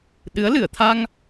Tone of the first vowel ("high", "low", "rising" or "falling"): rising